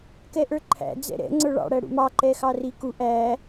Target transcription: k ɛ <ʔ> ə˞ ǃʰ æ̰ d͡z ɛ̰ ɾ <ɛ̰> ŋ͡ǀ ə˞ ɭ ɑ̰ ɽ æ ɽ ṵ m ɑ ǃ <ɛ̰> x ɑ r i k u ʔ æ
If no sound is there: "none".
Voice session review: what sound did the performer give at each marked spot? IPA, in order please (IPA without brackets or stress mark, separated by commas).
ʔ, ɛ̰, ɛ